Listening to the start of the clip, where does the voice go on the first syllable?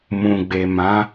low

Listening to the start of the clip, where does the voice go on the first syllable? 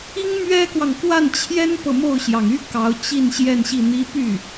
high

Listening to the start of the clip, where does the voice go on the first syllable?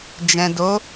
low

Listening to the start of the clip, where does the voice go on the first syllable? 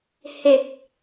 low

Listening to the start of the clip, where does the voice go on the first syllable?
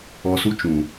low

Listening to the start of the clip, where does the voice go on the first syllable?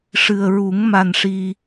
low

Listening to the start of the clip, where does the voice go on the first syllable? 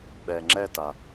low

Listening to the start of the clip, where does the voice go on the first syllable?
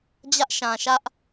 high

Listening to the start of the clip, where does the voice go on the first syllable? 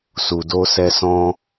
low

